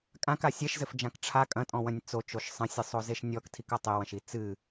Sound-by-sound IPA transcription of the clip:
kʼ ã k a sʲ ɛ ʃ z ɘ f d͡ʒ ã k ʈ͡ʂʰ a kʼ ɐ̃ tʼ ɔ̃ w ɐ̃ nʲ t͡s o t͡ʃ o ʃ sˤ ɐ̃ sʲ ɨ sˤ o z e ʃ nʲ ɔ k tʰ i k ɐ tˤ e w ɐ̃ ʃ i t͡s ɨ

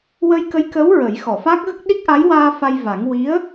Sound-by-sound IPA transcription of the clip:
w ə˧ j k ə˧˥ j k əː˧˥ w ɹ ə˨˩˦ j x ɔ˨˩˨ f a˦˥ k̚ ɣ ə˦˥ k̚ ɗ i˦˥ k̚ ʔ a˧˥ j w aː˧ f a˧ j v a˨˩˦ ŋ w i˧˥ ə̯

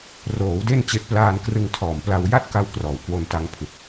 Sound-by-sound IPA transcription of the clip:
r oː˩˦ w d e˥˩ n t͡ɕ e˦˥ ʔ p l aː˧ n k r ɯ˧ ŋ tʰ ɔː˨˩ m p l a˧ w j a˥˩ t̚ k a˧ w k r ɔː˨˩ w k w o˧ n t a˧ ŋ pʰ ɯ˨˩ k̚

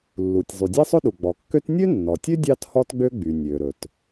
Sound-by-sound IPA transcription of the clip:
lː u˩ tʲ zˤ y˩ dʲ e˥ sˤ ɵ˥ ɗ u˩ ɡ͡b ɔ˩ kː ø˥ t nʲ ø˥ nː ɔ˩ tʲ ø˥ dʲ ɑ˥ t h ɔ˥ t ɡ͡b ø˥ ɡ͡b y˩ nʲ ø˩ ɾ ɵ˩ t

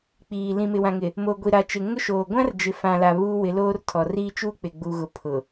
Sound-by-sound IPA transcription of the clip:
k͡p iː˨ l ĩ˨ m ɪ˨ w ã˨ ŋ ɪ˨ | m o˨ ɡʷ i˨ ɾ a˨ t͡ʃ ɪ˨ ŋ ʊ˦ ʃ oː˨ ɡʷ ã˦ r d͡ʒ ɪ˨ f ã˨ l a˨ β uː˦ w ɪ˨˦ l oː˦ r tʰ ɔ˨ r iː˦ t͡ʃ u˦ k͡p ɪ˨ ɡ͡b u˨ ɣ ʊ˨ pʰ ʊ˨

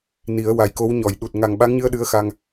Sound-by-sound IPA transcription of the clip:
n i˨˩˦ ə̯ w a˨˩ j k o˧˥ w ɲ ɔ˨˩˨ j ɗ u˨˩ t̚ ŋ a˨˩ ŋ ɓ a˧˥ ŋ ɲ ɨ˧ ə̯ ɗ ɨ˧˥ ə̯ x a˧ ŋ

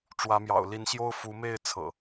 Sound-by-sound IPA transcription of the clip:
ʈ͡ʂ w ä˨˦ m j ɑ̰˨˩ ʊ̯ l i˨˦ n ɕ j o˦ ʊ̯ f u˨˦ m e˥˨ ɪ̯ t͡sʰ ɤ̰˨˩

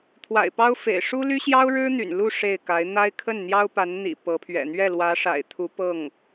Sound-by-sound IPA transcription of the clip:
t̪ʰ w a̰˨˩ ɪ̯ p ɑ˥ ʊ̯ f ḛ˨˩ ɪ̯ ʂ u˥ l y˥ ɕ j ɑ˥ ʊ̯ ɻ ɻ̩˥ n̪ y̰˨˩ n l u˥˧ ʂ e˥˩ ɪ̯ k a˧˥ ɪ̯ n̪ a˥ ɪ̯ kʰ ə˥˩ n n̪ j ɑ˥ ʊ̯ p a˧˥ n n̪ ḭ˨˩ p ɤ˧˥ pʰ ɥ ɛ̰˨˩ n̪ ɥ ɛ˥˩ l w ä˧˥ ʂ a̰˨˩ ɪ̯ t̪ʰ u˧˥ p ɤ˥˩ ŋ

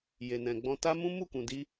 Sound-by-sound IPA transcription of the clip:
j e˨ n ɛ̃˨ ɡ͡b ɔ̃˧ t a˦ m ũ˦ m u˦˨ k ũ˨ d i˧

